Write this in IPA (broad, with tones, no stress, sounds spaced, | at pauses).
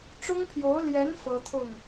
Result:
ʈ͡ʂ ʊ˥ ŋ pʰ j o˧˥ ʊ̯ l j ɛ˧˥ n f ɤ˥ t̪ʰ ʊ˥˩ ŋ